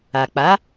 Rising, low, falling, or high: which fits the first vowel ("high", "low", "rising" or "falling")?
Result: low